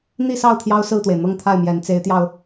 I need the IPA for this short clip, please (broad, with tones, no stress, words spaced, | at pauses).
n̪i˥˧sɑ˥˩ʊ̯ t̪ʰjɑ˥ʊ̯sɹ̩˥˩t̪we˩ɪ̯ n̪ɤ˥˧ŋt̪ʰa˥˩ɪ̯mjɛ˧˥n t͡se˧˥ɪ̯t̪jɑ˧ʊ̯